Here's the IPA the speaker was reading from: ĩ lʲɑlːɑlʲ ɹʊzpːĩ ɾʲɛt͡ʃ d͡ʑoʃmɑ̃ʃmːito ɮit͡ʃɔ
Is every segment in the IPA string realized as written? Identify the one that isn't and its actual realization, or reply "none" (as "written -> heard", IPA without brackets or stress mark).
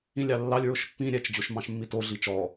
z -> ʃ